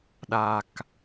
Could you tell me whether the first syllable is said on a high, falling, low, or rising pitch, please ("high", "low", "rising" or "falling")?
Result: low